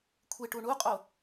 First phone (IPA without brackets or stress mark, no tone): kʷʰ